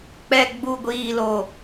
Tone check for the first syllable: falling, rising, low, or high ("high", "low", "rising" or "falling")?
low